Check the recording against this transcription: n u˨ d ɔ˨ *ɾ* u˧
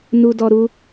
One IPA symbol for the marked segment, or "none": ɾ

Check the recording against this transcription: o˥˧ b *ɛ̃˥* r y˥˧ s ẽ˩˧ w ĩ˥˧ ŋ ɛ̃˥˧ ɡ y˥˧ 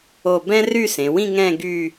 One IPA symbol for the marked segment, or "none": ɛ̃˥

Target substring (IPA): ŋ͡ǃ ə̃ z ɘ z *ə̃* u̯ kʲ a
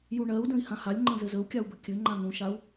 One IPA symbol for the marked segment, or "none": ə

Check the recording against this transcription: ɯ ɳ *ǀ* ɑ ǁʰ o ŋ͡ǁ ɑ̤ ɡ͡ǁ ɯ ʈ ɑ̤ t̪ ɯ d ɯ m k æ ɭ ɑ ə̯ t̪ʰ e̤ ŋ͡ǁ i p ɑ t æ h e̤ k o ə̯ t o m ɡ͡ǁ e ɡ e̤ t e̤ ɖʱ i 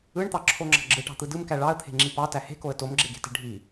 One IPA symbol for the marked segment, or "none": t̪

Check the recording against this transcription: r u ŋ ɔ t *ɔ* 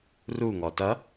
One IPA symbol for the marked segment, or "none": ʌ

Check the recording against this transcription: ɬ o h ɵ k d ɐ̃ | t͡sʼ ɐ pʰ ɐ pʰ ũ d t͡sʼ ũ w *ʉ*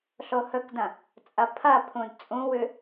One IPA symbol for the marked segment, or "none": ʉ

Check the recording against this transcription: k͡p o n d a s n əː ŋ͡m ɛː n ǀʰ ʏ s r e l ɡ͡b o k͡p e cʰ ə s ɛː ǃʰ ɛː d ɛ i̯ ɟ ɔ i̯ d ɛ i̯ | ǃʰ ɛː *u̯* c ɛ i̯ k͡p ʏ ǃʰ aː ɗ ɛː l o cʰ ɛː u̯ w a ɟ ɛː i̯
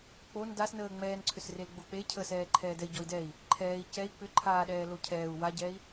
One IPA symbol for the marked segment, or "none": i̯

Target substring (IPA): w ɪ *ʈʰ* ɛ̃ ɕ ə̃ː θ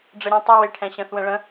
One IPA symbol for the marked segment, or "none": ʈʰ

